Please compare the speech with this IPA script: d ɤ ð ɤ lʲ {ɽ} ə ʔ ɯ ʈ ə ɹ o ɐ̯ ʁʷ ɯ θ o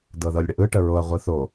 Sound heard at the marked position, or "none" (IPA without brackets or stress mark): ɽ